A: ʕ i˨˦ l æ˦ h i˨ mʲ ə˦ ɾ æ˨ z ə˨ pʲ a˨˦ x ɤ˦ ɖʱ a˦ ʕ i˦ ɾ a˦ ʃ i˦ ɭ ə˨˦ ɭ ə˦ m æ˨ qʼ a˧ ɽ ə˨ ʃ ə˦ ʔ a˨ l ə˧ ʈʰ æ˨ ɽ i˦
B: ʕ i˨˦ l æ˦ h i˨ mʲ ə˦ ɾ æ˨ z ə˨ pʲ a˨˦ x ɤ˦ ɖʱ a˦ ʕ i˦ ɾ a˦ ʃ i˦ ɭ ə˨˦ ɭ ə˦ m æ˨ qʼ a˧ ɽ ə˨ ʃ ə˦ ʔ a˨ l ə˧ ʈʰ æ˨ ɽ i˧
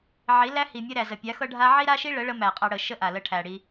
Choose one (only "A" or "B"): B